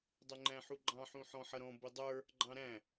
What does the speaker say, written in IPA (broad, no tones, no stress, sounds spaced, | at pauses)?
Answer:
dˤ ʊ ŋ͡ǃ æ̃ ħ u ɡ͡ǃ ɑ̃ ħ ũ ħ ɔ̃ ħ ʌ ɾ ɔ̃ b ʊ dˤ ə˞ | ɡ͡ǃ ɑ̃ ɾ æ̃